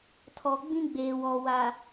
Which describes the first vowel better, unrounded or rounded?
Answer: rounded